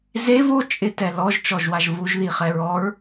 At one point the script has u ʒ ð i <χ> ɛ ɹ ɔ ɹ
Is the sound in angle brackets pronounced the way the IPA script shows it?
yes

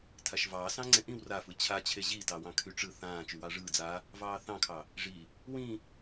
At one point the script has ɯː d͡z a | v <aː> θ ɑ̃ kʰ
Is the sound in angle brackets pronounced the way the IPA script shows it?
no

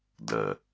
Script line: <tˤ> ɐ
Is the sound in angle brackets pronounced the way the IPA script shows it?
no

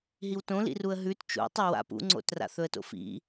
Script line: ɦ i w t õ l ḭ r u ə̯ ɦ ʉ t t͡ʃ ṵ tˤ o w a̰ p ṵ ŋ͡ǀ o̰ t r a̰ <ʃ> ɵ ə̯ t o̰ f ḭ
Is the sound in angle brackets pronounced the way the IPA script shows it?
no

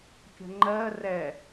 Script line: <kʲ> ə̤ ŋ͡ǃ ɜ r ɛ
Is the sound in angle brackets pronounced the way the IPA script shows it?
yes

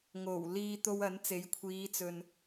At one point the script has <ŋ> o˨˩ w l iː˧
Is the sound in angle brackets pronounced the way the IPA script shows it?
yes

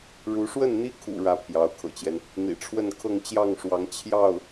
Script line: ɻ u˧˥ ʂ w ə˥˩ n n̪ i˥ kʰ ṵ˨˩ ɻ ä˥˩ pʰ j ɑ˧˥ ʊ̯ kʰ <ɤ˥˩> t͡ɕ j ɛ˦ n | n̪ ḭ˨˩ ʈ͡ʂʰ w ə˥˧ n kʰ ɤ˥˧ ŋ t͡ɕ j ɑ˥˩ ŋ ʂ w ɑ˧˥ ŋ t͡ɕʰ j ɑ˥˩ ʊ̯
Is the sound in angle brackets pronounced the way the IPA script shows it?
no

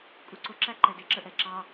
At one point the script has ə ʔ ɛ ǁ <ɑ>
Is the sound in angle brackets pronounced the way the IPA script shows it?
yes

